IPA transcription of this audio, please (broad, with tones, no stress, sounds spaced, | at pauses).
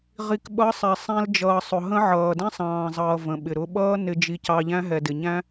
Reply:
ʁ i˨ k ɓ ʌ˨˦ sˤ ɛ˨ sˤ ɛ̃˧ l d͡ʒ ʌː˨ sˤ ʊ˨ ɦ ə̃˦ ʕ ʌː˨ d ɛ̃˦ sˤ ɑ̃ː˨ zˤ ʌː˨ v ə̃˨ ɓ ɪ˨ ɾ ʊ˧ ɓ ʌː˦ n ɪ˧ d͡ʒ i˧ c ɑ˧ ʎ æ̃˦ ɦ ɛ˨ d ɪ˨ ɲ æ̃˦